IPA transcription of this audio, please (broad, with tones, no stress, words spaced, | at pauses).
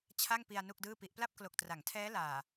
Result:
t͡ɕʰa˥˩ŋpi˧a̯ nu˥˩k̚dɯː˥˩pi˦˥ʔ pla˥˩p̚klo˨˩k̚tra˩˦ŋtʰɛː˦˥ laː˨˩